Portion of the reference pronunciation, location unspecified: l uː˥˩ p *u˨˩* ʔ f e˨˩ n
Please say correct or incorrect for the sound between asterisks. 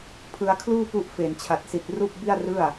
incorrect: u˦˥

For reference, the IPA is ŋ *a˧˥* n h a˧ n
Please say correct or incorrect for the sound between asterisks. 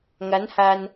correct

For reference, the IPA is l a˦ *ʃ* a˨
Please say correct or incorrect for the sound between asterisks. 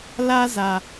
incorrect: z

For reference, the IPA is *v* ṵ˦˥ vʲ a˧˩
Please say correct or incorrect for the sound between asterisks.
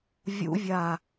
incorrect: vʲ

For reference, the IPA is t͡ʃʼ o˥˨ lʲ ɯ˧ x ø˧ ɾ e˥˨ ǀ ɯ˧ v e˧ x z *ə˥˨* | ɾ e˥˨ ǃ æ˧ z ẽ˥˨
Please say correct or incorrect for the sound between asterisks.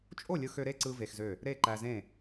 incorrect: ø˥˨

